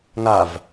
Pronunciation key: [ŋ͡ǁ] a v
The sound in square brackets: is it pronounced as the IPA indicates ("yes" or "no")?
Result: no